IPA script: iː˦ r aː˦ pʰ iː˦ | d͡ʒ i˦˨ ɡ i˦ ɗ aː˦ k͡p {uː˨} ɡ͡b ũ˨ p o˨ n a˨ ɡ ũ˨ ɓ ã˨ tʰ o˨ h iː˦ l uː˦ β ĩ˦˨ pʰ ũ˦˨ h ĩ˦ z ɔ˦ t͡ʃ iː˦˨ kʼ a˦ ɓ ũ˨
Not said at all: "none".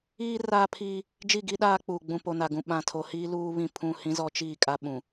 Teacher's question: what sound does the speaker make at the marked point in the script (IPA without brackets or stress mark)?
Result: uː˨